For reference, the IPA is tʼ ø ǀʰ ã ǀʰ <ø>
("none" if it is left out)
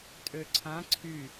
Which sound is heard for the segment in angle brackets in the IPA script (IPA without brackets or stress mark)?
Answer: y